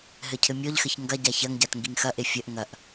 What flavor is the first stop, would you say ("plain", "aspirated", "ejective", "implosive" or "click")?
aspirated